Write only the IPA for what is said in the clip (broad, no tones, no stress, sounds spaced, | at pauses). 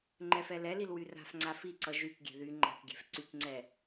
ŋ͡ǃ ɛ f ɛ l ɛ l i l w y r a̤ f ŋ͡ǀ a f i ǀ ʌ ʒ y k ɡʲ ɛ̤ ð y ŋ͡ǃ a̤ k ɡʲ ɛ̤ f ǀ y k ŋ͡ǀ ɛ